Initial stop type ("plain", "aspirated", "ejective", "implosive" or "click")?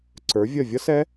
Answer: click